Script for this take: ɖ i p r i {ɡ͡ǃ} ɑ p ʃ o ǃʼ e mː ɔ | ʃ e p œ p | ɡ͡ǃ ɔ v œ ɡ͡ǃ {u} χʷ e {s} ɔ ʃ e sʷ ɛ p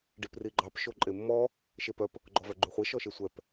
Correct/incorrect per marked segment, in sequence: correct, incorrect, incorrect

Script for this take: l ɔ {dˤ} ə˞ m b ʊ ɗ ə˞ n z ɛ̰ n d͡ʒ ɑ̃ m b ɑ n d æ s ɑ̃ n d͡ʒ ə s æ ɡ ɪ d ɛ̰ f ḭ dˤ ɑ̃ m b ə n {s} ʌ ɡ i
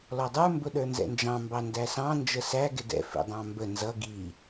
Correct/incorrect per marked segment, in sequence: correct, incorrect

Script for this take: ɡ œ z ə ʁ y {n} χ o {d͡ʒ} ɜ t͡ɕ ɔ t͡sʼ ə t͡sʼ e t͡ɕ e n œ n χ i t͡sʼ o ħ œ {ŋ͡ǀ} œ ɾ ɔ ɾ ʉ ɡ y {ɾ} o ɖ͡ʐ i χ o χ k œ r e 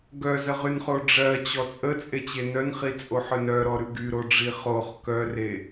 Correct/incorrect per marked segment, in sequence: correct, incorrect, incorrect, correct

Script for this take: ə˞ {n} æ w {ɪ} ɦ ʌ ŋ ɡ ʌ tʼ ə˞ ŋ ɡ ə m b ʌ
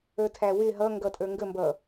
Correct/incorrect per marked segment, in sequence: incorrect, correct

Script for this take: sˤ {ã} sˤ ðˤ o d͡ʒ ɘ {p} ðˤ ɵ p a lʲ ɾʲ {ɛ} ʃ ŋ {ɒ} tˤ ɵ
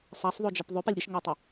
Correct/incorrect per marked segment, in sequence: incorrect, correct, incorrect, correct

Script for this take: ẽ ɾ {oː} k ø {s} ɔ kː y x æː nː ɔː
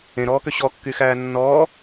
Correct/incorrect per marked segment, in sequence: incorrect, incorrect

